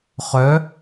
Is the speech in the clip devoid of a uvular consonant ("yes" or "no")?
no